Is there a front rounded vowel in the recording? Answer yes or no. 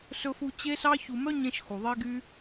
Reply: yes